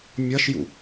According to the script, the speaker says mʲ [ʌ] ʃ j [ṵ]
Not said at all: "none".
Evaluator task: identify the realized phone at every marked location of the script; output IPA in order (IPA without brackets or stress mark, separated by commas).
ʌ, ṵ